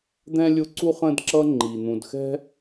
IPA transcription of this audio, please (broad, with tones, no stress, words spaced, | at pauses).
d̪ɛ̃˥lʲʊ˦ǀu˥ χə̃˦dǁʌ˦ŋ͡ǃi˩ n̪ũ˨dxɛ̤˥